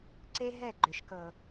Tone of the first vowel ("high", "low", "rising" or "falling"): high